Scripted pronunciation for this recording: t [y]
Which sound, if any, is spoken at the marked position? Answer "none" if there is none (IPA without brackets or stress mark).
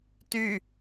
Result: y